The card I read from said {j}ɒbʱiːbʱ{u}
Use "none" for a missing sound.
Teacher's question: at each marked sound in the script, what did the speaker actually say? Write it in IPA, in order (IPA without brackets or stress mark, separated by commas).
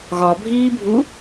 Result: ɣ, u